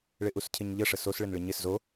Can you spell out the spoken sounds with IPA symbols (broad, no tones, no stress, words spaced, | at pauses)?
ɭɪʔuscʰɪɲʎə ʂəsos ɭɪnɭɪɲɪs zo